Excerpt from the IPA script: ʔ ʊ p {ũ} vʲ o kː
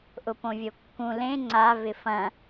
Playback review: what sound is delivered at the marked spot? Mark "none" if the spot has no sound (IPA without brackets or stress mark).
õ